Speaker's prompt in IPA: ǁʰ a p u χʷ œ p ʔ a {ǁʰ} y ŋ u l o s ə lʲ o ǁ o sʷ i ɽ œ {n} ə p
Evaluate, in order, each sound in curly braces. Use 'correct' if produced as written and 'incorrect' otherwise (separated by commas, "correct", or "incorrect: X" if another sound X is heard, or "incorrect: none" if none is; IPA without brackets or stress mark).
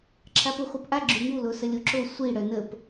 incorrect: ɡ͡ǁ, correct